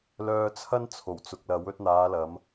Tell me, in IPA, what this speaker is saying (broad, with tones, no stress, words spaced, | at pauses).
lœː˧t͡sʰɐ˥n t͡sʰo˨˩wt͡sʊ˨k̚lɐ˨˥w ɵ˧t̚n̪aː˨˧lɐ˨˧m